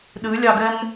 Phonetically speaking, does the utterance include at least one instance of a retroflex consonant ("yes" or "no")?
no